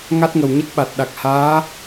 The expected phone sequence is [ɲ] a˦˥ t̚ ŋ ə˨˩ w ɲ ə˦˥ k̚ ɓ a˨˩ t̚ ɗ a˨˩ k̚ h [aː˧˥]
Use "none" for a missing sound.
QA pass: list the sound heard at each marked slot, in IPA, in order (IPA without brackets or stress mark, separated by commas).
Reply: ŋ, aː˧˥